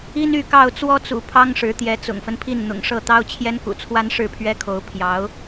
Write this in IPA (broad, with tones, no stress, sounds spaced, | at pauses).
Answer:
i˦ n y˥˨ k ɑ˥˨ ʊ̯ t͡s w ɔ˦ t͡s ṵ˨˩ pʰ ɑ˦ ŋ ʂ ɻ̩˨˦ t̪ j ɛ˨˦ t͡s ʊ̰˨˩ ŋ f ə˦ n pʰ i˥˨ n n̪ ʊ̰˨˩ ŋ ʂ ɤ˥˨ t̪ ɑ˦ ʊ̯ t͡ɕʰ j ɛ˦ n k ṵ˨˩ t͡sʰ w a˦ n ʂ ɻ̩˥˨ pʰ ɥ ɛ˦ kʰ o˨˦ ʊ̯ pʰ j ɑ˨˦ ʊ̯